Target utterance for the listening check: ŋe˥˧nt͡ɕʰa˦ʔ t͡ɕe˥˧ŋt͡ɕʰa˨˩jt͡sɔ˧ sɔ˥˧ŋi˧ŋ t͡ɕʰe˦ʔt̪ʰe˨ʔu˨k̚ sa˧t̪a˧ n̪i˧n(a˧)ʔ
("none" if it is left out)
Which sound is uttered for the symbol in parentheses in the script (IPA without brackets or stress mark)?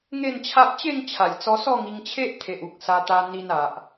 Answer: a˨